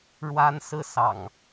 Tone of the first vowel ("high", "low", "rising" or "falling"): high